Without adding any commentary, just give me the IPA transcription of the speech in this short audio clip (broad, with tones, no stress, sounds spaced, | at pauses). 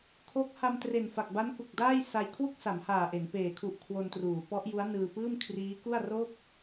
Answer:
kʰ o˦˥ k̚ h a˧ m t r e˨˩ n f a˨˩ k̚ b a˦˥ n k u˨˩ k̚ d aː˥˩ j s a˧ j kʰ w u˥˩ k̚ s a˩˦ m h aː˨˩ ʔ e˩˦ n p eː˩˦ kʰ u˨˩ ʔ kʰ w o˧ n t r uː˩˦ p ɔ˦˥ ʔ j u˦˥ a̯ n ɯː˧ p ɯː˥˩ m kʰ r iː˦˥ k u˥˩ a̯ r o˥˩ k̚